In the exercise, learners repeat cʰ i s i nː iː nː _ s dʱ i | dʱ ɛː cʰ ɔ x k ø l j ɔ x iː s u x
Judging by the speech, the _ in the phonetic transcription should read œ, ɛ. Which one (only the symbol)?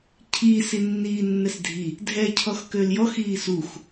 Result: ɛ